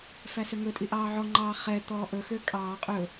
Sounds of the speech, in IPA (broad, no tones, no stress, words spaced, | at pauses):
fæsøŋɵtʼi ʔɑːʕɔŋ͡ǃɑː χɛ t̪ɔːʔɵxø kʼɑː qʼɵ